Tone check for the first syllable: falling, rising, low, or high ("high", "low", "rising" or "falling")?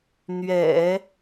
low